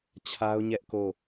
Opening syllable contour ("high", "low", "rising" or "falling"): high